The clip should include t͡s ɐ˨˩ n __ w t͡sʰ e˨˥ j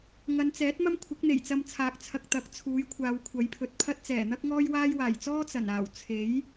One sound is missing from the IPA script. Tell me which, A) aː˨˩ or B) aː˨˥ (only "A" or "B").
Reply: A